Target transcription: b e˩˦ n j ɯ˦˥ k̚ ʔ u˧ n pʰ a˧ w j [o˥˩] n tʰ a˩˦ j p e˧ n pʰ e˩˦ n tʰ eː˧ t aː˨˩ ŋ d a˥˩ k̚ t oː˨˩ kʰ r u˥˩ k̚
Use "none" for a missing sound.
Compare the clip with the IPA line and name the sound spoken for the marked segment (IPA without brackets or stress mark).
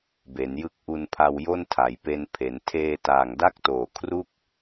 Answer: o˥˩